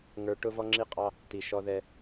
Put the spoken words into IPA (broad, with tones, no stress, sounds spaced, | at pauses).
ŋ ə˞˦ ʈ ʊ˦ v ɔ˦ ŋ͡ǁ i˦ qʼ ɑ˦ | t i˨ ʃ ɔ˦ ð ɛ˦